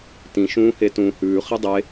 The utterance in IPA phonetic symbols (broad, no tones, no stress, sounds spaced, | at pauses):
t ĩ ʃ ũː h e t ũː h ʉː χ i dˤ e